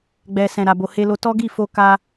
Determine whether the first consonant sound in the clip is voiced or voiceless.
voiced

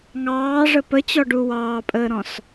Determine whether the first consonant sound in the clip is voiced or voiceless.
voiced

